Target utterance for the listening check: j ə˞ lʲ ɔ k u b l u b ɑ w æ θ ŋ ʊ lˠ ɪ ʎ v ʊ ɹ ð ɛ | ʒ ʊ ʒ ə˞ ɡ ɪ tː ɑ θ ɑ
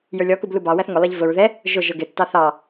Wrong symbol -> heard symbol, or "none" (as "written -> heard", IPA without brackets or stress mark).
none